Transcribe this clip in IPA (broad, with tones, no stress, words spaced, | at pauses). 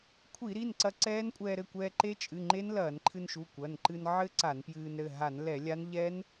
kʷʰi˧˩˧ɾi˩˧˩n ǀɐ˧ ǀɛː˦˥nkʷʼɛː˧ɾɘ˩˧˩kʷɛː˧ ǃe˦˥t͡ʃʼɨ˩˧˩ ŋ͡ǃe˦˥nlɐː˧˩˧nǃʰɨ˧nʃu˩˧˩ kʷɐ˩˧˩nǃɨ˧n ʕɘ˦˥ ǀa˧˩˧npjɨː˧nɾɘ˩˧˩ ɦa˧˩˧nlɛ˧˩˧ lʲa˦˥n ʎɛ˦˥n